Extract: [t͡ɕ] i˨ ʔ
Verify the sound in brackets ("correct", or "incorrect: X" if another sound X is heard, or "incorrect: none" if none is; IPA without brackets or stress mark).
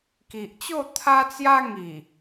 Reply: incorrect: k